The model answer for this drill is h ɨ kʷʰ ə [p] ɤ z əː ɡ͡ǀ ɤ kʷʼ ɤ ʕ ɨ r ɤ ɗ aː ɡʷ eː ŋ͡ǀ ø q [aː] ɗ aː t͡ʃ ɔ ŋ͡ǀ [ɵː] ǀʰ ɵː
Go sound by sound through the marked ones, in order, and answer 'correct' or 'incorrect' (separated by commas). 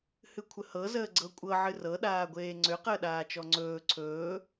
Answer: incorrect, incorrect, correct